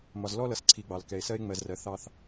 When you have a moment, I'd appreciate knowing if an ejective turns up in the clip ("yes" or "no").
no